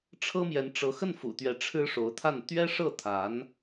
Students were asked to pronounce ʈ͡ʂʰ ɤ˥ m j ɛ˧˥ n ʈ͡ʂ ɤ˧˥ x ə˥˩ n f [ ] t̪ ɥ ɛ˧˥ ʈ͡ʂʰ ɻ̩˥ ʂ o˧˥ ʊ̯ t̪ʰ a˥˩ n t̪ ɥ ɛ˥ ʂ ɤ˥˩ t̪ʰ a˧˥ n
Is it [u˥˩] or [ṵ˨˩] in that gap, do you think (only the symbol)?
ṵ˨˩